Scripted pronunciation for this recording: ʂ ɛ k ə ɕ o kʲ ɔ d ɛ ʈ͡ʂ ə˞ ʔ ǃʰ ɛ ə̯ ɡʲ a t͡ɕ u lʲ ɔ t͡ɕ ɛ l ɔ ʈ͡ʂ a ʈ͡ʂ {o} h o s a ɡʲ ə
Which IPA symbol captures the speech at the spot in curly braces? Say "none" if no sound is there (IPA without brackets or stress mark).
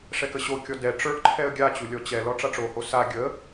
o